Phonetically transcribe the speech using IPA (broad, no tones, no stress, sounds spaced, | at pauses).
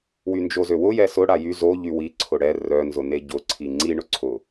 w y n d͡ʒ o z ø w ʊ j ɛ s ʊ ɽ a j y z o ʎ y w i ǀʰ ʊ ɽ ɛ r œ n z ʊ n e ɟ ʊ ǀʰ i ŋ͡ǀ i ɳ ʊ ǀʰ ʊ